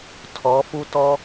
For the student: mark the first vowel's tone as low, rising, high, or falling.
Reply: rising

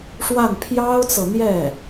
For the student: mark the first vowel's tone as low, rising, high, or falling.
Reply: falling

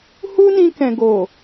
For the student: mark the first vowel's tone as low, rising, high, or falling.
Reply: high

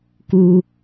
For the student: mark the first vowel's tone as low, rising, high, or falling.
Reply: low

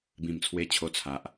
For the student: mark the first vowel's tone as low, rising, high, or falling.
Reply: low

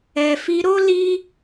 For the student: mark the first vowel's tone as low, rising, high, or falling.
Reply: low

